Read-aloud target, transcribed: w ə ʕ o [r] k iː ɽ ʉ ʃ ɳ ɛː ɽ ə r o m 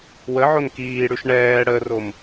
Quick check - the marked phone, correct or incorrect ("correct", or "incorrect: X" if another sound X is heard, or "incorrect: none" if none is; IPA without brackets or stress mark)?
incorrect: n